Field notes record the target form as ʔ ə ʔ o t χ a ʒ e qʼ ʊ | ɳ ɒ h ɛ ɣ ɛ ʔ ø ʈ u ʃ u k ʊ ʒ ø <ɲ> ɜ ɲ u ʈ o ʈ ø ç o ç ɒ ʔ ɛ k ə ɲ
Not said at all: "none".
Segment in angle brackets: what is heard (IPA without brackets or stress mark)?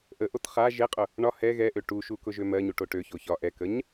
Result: m